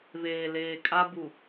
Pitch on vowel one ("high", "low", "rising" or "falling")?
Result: low